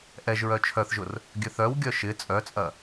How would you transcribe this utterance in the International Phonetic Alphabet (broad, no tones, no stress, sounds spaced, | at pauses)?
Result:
ʔ ɛ ʒ ɹ œ t͡ʃʰ œ θ ʒ ʊ r | ɡʲ ø θ œ w ɡʲ œ ʃ ɪ t͡sʼ œ t͡sʼ ɐ